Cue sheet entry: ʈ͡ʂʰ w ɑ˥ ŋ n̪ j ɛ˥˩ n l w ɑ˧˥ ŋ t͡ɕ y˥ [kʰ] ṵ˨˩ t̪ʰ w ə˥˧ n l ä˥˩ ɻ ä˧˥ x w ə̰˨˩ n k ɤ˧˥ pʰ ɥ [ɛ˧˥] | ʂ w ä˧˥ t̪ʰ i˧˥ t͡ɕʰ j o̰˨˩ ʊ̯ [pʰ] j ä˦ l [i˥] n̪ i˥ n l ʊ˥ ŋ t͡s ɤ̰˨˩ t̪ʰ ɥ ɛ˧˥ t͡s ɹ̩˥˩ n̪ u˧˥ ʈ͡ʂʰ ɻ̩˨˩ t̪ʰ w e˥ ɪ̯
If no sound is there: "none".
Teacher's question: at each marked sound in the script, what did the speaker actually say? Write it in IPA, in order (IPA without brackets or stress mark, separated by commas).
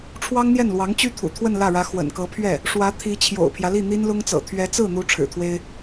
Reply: t̪ʰ, ɛ˥˩, pʰ, i˥˩